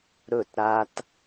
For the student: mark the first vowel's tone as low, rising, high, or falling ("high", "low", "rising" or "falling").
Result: falling